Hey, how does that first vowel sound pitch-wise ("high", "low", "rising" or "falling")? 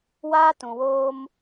high